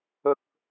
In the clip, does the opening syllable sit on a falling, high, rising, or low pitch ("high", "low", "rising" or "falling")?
high